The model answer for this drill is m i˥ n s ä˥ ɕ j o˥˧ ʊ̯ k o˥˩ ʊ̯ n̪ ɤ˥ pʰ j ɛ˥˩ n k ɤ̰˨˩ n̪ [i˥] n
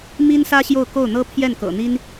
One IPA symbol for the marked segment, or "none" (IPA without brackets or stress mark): i˥